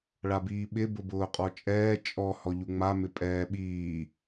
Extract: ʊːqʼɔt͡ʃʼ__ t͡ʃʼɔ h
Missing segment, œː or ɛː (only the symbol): ɛː